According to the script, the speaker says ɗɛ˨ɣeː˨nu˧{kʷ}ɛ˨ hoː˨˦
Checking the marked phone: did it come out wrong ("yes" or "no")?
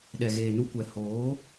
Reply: no